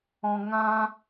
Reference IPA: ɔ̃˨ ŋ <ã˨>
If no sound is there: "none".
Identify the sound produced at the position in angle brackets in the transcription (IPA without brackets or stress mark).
ã˦